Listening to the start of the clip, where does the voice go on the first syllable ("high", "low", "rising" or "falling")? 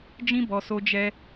high